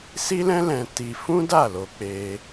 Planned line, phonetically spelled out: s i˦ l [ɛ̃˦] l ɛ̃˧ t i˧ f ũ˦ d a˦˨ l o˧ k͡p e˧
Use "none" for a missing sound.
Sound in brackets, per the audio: ɛ̃˦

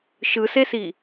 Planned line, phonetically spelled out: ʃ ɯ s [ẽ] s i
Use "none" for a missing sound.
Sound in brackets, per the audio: e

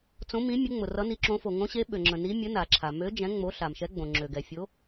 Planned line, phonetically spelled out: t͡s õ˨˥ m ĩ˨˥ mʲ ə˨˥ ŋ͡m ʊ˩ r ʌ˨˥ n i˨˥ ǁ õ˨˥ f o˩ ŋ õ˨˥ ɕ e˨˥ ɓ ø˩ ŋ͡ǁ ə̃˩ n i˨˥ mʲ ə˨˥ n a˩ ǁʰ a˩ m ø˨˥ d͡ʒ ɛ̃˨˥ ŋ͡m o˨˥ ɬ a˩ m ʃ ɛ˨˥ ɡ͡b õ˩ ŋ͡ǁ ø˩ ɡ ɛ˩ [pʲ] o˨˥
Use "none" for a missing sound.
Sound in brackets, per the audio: fʲ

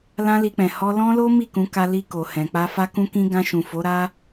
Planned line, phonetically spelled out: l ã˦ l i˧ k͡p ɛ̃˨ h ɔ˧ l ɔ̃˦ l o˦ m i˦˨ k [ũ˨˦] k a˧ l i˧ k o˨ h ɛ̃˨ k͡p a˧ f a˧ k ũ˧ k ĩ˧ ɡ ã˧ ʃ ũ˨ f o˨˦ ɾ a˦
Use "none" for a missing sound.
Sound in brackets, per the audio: ũ˨˦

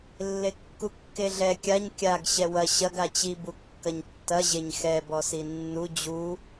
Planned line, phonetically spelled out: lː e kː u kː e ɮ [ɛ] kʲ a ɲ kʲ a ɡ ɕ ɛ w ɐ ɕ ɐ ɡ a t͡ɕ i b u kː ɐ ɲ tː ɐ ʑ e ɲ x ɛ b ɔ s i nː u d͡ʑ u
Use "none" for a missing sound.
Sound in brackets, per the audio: ɛ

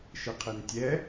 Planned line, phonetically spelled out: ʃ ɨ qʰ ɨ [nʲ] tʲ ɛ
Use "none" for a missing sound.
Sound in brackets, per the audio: n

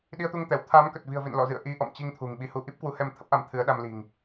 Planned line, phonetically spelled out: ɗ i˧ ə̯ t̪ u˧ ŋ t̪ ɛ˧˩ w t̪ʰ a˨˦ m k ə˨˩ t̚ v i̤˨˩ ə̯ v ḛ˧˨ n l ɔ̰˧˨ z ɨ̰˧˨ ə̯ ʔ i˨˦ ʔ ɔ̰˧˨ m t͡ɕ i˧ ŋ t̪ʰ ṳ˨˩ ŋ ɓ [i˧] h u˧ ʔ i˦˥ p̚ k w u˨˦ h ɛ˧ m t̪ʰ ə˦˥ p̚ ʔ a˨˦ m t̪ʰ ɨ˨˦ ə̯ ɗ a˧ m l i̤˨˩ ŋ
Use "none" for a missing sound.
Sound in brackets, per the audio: i˨˦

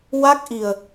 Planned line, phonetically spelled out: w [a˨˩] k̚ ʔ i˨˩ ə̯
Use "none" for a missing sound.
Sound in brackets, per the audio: a˦˥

